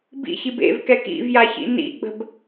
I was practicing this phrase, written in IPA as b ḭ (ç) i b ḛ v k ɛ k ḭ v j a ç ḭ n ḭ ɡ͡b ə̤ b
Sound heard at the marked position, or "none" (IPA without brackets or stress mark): ç